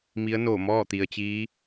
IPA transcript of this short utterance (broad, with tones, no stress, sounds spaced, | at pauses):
m i˧˥ ə̯ n oː˧˩ m ɔː˥˨ t̪ i˩ ə̯ t͡ɕ iː˧˥